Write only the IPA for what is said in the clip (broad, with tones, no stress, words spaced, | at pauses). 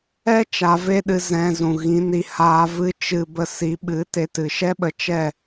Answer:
ɛ˦ t͡ʃa˧ve˦ɗɨ˧ zɛ̃˧zũ˨ɣĩ˨˦ni˧ haː˧vɨ˦ t͡ʃɨ˧ bə˧si˨˦ɓɨ˨˦te˧ tɨ˨ʃɛ˦ɓə˧t͡ʃɛ˦˨